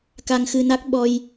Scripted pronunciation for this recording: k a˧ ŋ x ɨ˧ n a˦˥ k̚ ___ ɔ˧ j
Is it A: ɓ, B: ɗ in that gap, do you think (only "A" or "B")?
A